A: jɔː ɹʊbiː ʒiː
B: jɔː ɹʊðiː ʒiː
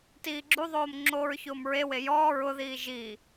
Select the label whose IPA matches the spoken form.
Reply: B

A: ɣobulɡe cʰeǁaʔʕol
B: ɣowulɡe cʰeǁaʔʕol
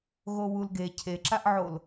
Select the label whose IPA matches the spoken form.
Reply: B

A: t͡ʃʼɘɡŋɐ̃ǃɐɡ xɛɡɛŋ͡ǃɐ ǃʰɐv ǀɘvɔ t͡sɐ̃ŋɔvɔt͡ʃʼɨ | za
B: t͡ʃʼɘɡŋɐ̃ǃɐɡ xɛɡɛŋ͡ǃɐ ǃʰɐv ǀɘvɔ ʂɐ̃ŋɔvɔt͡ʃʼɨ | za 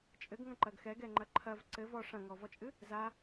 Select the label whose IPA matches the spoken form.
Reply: B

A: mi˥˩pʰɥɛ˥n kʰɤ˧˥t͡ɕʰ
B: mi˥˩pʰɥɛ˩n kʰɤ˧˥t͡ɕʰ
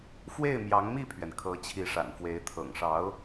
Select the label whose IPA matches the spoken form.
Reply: B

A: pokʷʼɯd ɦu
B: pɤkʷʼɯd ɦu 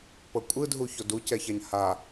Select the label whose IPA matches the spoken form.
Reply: B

